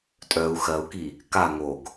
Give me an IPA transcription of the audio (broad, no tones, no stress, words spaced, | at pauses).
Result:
tʼœu̯ xɜu̯ki | ka ŋoɡ